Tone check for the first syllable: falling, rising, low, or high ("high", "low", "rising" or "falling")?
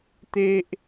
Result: high